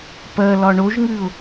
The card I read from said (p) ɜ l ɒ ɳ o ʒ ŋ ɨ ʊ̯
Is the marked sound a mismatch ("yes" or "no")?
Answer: no